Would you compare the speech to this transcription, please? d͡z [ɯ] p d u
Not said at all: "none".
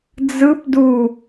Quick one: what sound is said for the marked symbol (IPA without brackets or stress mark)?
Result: ɯ